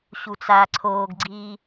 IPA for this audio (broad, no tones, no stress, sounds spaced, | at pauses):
ɕ u t͡s aː ǀʰ oː ɡ ɡ͡ǀ iː